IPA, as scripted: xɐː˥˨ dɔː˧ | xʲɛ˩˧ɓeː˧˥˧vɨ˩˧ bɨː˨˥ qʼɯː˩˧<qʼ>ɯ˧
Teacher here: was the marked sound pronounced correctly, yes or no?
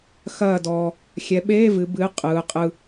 yes